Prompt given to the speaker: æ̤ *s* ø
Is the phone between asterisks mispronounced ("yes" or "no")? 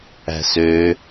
no